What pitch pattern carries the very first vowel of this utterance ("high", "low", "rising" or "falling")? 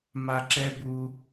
high